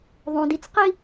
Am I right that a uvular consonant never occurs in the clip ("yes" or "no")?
no